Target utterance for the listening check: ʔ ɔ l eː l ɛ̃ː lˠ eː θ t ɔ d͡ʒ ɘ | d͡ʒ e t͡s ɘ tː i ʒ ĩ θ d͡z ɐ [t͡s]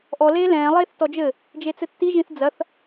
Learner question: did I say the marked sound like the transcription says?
no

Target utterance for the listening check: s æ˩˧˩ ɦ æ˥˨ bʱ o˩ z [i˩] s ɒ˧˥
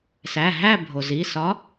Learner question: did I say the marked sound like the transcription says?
no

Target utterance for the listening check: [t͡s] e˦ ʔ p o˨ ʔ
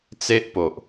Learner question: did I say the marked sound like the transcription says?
yes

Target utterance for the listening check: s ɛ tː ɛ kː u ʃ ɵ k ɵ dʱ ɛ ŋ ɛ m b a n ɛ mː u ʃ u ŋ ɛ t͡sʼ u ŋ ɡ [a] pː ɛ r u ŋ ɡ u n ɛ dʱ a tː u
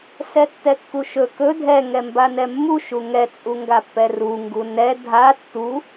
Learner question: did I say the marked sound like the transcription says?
yes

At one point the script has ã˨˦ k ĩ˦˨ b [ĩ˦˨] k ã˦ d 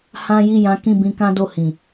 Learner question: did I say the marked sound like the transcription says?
no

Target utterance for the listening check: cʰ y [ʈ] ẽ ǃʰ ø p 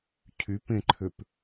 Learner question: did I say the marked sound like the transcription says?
no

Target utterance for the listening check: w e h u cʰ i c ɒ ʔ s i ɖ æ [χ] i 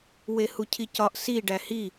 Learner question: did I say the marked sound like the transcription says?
no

